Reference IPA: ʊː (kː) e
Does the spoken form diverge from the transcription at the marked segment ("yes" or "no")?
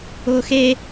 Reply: yes